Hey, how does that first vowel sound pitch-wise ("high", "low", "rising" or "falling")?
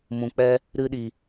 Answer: low